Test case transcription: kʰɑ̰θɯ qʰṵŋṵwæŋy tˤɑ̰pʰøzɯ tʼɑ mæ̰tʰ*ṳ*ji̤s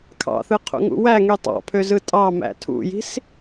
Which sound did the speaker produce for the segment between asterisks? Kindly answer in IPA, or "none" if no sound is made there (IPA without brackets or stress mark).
ṵ